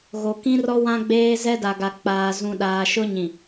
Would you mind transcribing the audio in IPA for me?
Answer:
ɣ o˨ k ĩ˦ r ɔ˦ w ã˦ ɡ͡b eː˦ z ɛ˦ d a˨ ɡ a˨ k͡p aː˨ z ũ˨ ɗ aː˨ ʃ ʊ˦ ɲ ĩ˨

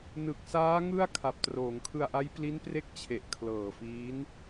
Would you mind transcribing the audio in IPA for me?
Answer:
n ɯ˨˩ k̚ s aː˦˥ ŋ ɯ˥˩ a̯ kʰ a˨˩ p̚ t r oː˩˦ ŋ kʰ ɯ˧ a̯ ʔ a˦˥ j p l i˦˥ n p r e˦˥ k̚ t͡ɕʰ e˨˩ ʔ kʰ l ɤː˨˩ f iː˦˥ n

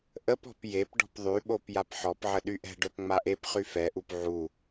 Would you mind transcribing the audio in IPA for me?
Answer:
ʔ ə p ɔ̤ p j e p ɖ ɔ̤ p ðˤ y ɓ o p j a p ħ ɔ p ʕ ə ɗ y ʔ ɛ̤ ɖ œ p ŋ͡m a ʔ e p χ y f ɛ ʔ u p ʕ u

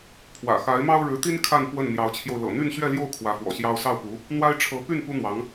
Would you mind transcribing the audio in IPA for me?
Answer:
pʰ w ä̰˨˩ x a˧˥ ɪ̯ m ɑ˥ ʊ̯ ɻ ɻ̩˧˥ t̪ i˥ n kʰ a˥˧ n p w ə˥˩ n n̪ j ɑ˧˥ ʊ̯ t͡ɕʰ j o˧ ʊ̯ l ɤ̰˨˩ n̪ y˥˧ n ɕ ɥ ɛ˥˧ l j o˥˩ ʊ̯ kʰ w ä˧˥ f w ɔ̰˨˩ ɕ j ɑ˥ ʊ̯ s ɑ˥˩ ʊ̯ p u˧˥ | n̪ w a˥ ɪ̯ ʈ͡ʂʰ ɤ˧˥ p y˥˩ n p u˥ n̪ w ɑ˧˥ ŋ

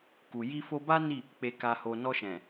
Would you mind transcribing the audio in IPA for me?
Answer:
k u˨ j i˧ f o˧ b a˦ n i˦˨ | k͡p e˧ k a˧ h o˧ n ɔ˧ ʃ ɛ̃˨

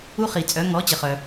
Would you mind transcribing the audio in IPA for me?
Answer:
u˦ χ i˩ t͡sʼ œ˩˥ ŋ ɔ˩˥ t͡ɕ ə˩ χ œ˩

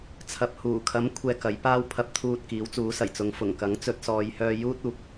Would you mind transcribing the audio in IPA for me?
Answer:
t͡sʰ ɐ˨ p̚ h uː˨˩ kʰ ɐ˨˥ m kʷʰ ɛː˨ k ɐ˨˥ j p aː˥ w pʰ ɐ˧ p̚ t̪ʰ uː˧ t̚ k iː˨˥ w t͡s uː˨˥ s ɐ˨˩ j t͡s ʊ˨˧ ŋ f ʊ˨˩ ŋ k ɐ˨˥ ŋ t͡s ɵ˧ t̚ s ɔː˨˧ j h œː˧ j uː˥ t̚ uː˨ k̚

